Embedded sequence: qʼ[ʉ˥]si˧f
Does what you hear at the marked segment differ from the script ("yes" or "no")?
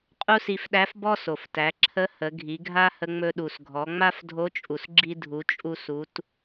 yes